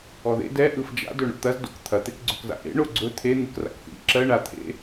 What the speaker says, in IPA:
ɔðḛ dɛ ʔɯfd͡ʒa̰ dɵɳo̰t̪ɐz do̰kt̪ʰɐ t̪ekɡ͡ǀɵkza̰ʔḛ ɳoɡ͡ǀɵ t̪ʰe n̪ɯkra̰kθḭ ǁɜ ɳa t̪ʰḛ

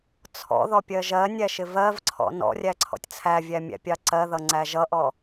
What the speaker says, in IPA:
t͡sʰɔ̰ðɔpʲɜ ʒɜnʲæʃɪ vɜvǀʰɔ̰ nɔ̰rʲæǀʰɔ̰tʲ t͡sʰævʲæmʲæ̰pʲɑ ǀɜðʌŋ͡ǀæ ʒʌʔɔ

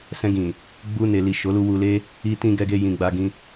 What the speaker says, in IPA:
sɛ̃˧ɡĩ˨ | ɡ͡bu˧ne˨li˨ ʃo˨˦lu˧wu˧le˦ | i˧tĩ˧ ɡɛ˧ɡe˧jĩ˨ɡ͡ba˧ ɡĩ˧

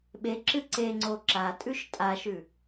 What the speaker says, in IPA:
ɓeǁɨ ǀeŋ͡ǀo ǁatʼʉʃ tʼaʃʉ

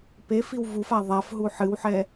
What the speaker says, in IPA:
pe fiwvufa ðˤafɦu ħɨwħɛ

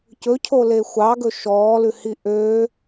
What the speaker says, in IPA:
cɵcʰole xʷɑɡɵ ʃɔːlʉhi ʔø

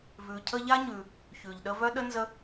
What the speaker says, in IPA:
vʉ˨cʰə˦ʎa˥ɲʉ˨ | çʉ˩ʎ ɗə˦vœ˥ ɗə˥nzə˦

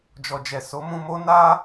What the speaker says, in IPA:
d͡ʒɔ˨d͡ʒɛ˨ so˨˦mũ˧mo˦ na˦

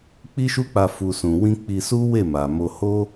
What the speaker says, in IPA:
k͡pi˦ʃu˦k͡pa˧ fu˨sũ˨ wĩ˧ k͡pi˧su˦ we˦˨ma˨ mo˧ho˦

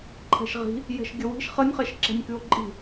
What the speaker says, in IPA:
ǃʰɛ̤ʃʁi̤ | jɛ̤ʃɡʲəwi̤ʃ χənʲχɛʃǁɛ̤nʲ kʉo̯ǃʼi̤

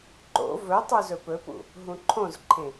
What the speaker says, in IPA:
ǃo̰ vɵtˤu zɵpɵpṵ | ɦũǃʰõzǃʰẽ

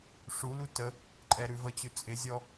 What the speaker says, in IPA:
ʂulu tə | ǃʼɛɾʉvət͡ɕʉ t͡sʼɪzʲɔ

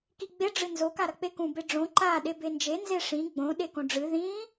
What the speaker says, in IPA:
kiɡ͡be ɖ͡ʐɨnzo kaɾɐk͡pekũ beɖ͡ʐõ ǃa ɗebend͡ʒe nzeʂĩ ɡ͡bõ ɗekõɖ͡ʐɨ ðĩ

